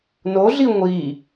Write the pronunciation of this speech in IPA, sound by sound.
n o ɮ i ŋʷ i

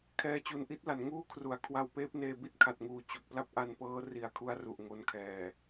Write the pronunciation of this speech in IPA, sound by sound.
kʰ ɛː˧ t͡ɕ u˨˩ n ʔ i˥˩ t̚ l a˩˦ n ŋ uː˥˩ kʰ r u˩˦ a̯ kʰ w a˧ w p eː˦˥ p̚ n eː˧ b i˥˩ t̚ kʰ a˨˩ t̚ ŋ uː˨˩ t͡ɕ o˨˩ k̚ p l a˦˥ p̚ ʔ a˧ n p ɤː˦˥ r i˨˩ a̯ kʰ u˧ a̯ r u˨˩ ʔ ŋ o˧ n kʰ ɛː˨˩

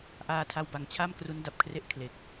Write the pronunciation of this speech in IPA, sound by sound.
ʔ aː˧ tʰ a˧ w b a˨˩ ŋ t͡ɕʰ a˥˩ m k r u˦˥ n d a˨˩ p̚ kʰ r e˦˥ ʔ kʰ l e˨˩ k̚

